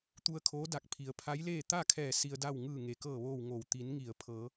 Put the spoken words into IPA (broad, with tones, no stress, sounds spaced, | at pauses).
t̪ u˧ ə̯ kʰ oː˧˥ d a˧˩ k̚ pʰ i˩˧ ə̯ pʰ a˧˥ j l eː˥˨ t̪ a˥˨ kʰ ɛː˧˩ s i˧ ə̯ d a˥˨ w ŋ ɯː˧˩ ŋ e˩ k ɤː˧˩ ʋ oː˧˩ w ŋ o˧˩ w t̪ i˩˧ n ŋ i˧˩ ə̯ pʰ ɤː˩˧